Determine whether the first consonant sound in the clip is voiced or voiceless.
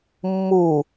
voiced